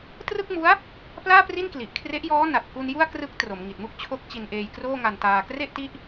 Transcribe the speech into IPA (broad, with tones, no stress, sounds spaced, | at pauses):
t r ɯ˥˩ k̚ m u˦˥ a̯ | p l aː˥˩ p r i˥˩ n k l i˨˩ ʔ kʰ r e˦˥ ʔ j ɔː˦˥ n a˨˩ t̚ k u˧ n j u˥˩ a̯ k r ɯ˦˥ k̚ t r o˩˦ m ŋ i˨˩ t̚ m u˥˩ k̚ t͡ɕʰ o˦˥ k̚ t͡ɕ i˧ n ʔ eː˧ j k r oː˥˩ ŋ a˧ n t aː˧ k r e˥˩ ʔ t i˦˥ ʔ